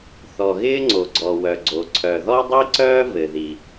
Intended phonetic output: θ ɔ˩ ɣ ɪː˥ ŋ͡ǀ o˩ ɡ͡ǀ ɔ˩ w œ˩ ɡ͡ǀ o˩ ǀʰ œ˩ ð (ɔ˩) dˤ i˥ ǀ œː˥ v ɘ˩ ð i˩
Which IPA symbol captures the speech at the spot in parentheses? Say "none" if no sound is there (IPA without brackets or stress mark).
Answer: ɔ˥